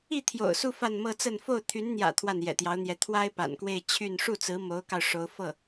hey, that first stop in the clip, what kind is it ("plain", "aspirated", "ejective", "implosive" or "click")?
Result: aspirated